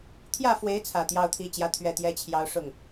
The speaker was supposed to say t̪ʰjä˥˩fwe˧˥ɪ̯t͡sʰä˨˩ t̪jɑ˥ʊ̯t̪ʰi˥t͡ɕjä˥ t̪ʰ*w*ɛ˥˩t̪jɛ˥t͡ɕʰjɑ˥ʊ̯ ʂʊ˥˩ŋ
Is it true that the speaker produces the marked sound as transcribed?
no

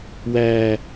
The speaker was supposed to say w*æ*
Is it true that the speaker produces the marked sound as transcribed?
no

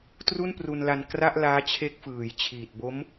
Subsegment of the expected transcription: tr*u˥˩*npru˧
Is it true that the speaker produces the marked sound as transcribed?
yes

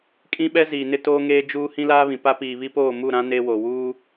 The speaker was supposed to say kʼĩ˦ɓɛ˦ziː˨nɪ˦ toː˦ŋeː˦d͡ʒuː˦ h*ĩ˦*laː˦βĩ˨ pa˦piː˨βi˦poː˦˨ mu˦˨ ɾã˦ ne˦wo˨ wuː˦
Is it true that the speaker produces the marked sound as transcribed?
yes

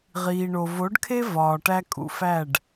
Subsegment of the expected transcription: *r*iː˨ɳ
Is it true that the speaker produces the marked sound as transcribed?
no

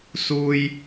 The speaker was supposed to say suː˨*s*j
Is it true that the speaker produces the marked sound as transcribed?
no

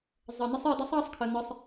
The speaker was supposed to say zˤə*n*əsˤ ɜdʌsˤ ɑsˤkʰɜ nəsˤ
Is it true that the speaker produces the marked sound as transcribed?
yes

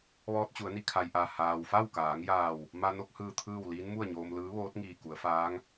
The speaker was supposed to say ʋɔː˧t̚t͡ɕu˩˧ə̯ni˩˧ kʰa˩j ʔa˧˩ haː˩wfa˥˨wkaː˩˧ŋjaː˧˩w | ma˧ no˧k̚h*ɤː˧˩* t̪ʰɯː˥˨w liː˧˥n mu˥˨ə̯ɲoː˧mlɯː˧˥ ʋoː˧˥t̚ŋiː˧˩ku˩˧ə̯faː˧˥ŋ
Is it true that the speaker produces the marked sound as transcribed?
no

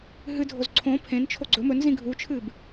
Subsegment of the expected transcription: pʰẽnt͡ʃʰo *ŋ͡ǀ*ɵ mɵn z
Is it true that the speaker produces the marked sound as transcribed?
no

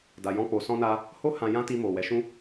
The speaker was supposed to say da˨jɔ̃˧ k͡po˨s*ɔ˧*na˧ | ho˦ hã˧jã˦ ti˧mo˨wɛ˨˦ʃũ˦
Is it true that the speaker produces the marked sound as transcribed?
no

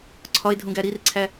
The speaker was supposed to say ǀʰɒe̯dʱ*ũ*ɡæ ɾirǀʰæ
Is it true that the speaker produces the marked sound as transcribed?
yes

